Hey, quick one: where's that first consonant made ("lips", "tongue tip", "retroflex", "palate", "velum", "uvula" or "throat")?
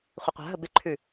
uvula